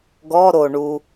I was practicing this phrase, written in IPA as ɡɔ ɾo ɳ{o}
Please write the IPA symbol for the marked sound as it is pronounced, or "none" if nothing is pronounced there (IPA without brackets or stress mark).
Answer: u